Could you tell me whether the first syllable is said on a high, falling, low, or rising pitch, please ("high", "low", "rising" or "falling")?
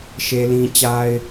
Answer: high